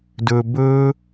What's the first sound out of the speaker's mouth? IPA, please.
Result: d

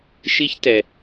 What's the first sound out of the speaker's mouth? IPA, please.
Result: ʃ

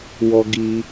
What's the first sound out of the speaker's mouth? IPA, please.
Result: w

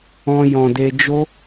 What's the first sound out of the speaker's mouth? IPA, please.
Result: ɔ̃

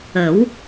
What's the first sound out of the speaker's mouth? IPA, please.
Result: ə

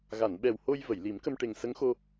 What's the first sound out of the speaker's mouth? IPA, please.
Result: ɣ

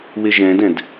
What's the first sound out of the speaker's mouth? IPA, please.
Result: w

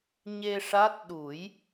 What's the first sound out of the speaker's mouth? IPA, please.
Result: ɲ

